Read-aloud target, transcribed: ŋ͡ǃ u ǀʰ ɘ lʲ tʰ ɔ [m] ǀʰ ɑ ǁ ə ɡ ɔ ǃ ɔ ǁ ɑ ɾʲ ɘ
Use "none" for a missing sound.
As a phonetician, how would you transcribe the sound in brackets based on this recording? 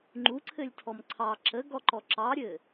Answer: m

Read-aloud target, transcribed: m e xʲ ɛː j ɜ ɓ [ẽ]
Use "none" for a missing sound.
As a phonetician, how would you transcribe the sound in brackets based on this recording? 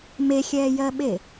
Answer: e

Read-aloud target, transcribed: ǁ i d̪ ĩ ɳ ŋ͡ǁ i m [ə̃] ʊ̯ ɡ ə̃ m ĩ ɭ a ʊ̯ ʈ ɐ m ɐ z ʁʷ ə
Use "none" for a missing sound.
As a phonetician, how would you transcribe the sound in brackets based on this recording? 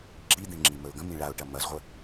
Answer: ə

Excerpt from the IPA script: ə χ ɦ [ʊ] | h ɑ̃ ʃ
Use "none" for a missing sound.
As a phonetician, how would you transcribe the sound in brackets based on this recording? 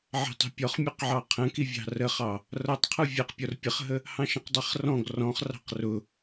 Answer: ə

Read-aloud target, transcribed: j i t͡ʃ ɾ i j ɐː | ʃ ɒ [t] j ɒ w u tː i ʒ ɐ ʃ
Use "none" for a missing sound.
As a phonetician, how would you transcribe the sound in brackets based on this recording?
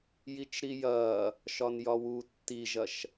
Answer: n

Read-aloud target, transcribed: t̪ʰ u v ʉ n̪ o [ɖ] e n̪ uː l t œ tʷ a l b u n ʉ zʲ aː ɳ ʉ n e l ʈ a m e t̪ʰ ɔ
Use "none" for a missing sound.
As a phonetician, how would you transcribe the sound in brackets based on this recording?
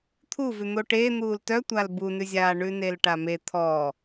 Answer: ʈ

